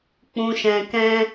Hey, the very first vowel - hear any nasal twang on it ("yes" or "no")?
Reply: yes